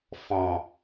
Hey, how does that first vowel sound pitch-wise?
low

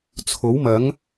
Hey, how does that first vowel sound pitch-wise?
rising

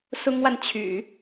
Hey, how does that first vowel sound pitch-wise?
high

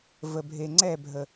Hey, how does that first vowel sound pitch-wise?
low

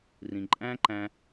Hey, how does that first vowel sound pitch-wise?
low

